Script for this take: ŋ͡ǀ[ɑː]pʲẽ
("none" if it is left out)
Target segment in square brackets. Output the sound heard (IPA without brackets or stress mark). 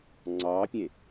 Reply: ɑː